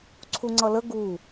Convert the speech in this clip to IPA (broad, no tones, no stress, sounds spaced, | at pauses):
ǀʰ u ŋ͡ǀ ʌ l ə ɡ u